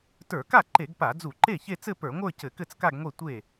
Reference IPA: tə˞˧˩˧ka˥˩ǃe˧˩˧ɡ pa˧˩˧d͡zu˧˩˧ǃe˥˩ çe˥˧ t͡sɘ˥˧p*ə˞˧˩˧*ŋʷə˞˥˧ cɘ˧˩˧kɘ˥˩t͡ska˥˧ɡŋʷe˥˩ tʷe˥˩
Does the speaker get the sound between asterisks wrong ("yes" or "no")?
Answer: no